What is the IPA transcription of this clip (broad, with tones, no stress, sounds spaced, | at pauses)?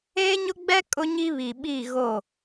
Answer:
eː˦ ɲ ʊ˦ ɡ͡b ɛ˦ kʼ ʊ˦ ɲ i˦ β i˨ ɓ i˦˨ ɣ o˦˨